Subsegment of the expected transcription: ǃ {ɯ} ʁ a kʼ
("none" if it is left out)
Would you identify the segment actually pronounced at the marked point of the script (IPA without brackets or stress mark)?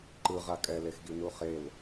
ɯ